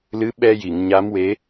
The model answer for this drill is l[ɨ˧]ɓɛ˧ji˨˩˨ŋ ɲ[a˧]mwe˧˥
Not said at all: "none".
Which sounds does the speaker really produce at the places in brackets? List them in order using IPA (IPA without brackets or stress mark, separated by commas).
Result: ɨ˧˥, a˧˥